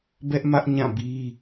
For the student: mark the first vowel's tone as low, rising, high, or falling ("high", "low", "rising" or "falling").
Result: high